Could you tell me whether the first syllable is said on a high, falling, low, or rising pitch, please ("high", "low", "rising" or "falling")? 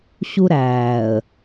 high